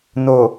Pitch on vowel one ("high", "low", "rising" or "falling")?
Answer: low